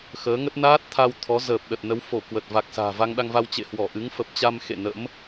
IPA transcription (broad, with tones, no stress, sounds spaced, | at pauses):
x əː˨˦ ŋ ə˦˥ t̚ n aː˦˥ t̚ t̪ʰ a˧ w t̪ʰ ɔ˨˦ z əː˨˩ p̚ ɗ ə˨˩ t̚ n ə˨˦ w f o˧˩ k w ə˨˩ t̚ v a˨˩ k̚ s a̤ː˨˩ v a˧ ŋ ɗ a˧ ŋ v a˧ w t͡ɕ ḛ˧˨ h w ɔ˧˩ ʔ ɨ˨˦ ŋ f ə˨˩ p̚ t͡ɕ a˧ m x ḛ˧˨ n ə̰˧˥ m